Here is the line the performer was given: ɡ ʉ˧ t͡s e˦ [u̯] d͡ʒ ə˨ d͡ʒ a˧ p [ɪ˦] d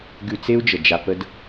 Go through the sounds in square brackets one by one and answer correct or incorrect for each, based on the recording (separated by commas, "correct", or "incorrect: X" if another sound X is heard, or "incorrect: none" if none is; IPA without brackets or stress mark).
correct, incorrect: ə˦